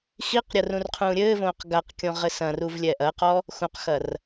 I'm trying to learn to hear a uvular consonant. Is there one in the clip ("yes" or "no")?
yes